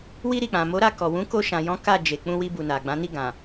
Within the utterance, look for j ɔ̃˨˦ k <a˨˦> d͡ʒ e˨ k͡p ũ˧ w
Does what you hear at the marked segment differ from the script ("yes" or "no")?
yes